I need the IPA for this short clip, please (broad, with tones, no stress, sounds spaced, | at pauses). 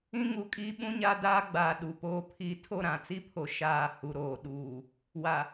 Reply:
ĩ˦ ŋ u˨ kʼ iː˦ ɓ ũ˦ ɲ a˦ d aː˦ ɡ͡b aː˨ ɗ u˨ p oː˦ pʰ i˦˨ tʰ o˦˨ ɾ ã˨ t͡s i˦ pʰ o˨ ʃ aː˦˨ h u˨ ɾ oː˨ ɗ uː˨ | w a˨